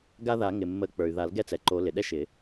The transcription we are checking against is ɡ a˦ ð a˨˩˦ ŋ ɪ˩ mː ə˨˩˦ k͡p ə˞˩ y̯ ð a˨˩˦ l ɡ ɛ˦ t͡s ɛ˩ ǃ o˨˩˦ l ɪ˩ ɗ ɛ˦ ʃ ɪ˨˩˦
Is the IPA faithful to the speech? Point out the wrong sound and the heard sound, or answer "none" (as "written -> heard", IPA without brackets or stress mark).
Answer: none